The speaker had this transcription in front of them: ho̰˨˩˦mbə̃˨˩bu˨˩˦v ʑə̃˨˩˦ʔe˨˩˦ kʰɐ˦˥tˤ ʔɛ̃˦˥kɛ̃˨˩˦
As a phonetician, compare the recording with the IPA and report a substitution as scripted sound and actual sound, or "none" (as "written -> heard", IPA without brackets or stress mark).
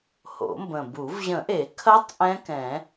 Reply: none